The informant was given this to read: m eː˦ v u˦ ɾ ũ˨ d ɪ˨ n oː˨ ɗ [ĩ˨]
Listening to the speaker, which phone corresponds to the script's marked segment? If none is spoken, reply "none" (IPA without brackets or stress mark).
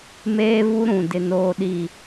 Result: i˨